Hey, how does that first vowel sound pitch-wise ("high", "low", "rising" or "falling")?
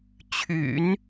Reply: low